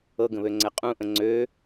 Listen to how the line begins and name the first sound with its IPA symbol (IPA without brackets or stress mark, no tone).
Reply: ɤ